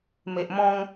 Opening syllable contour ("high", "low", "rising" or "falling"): low